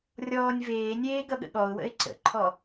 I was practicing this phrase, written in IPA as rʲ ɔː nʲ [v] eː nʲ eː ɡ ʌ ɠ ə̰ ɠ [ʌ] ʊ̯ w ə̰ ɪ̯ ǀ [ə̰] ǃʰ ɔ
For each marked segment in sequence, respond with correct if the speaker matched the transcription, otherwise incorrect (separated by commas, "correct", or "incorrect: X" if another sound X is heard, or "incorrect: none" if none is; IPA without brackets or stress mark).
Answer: correct, incorrect: ɔ, correct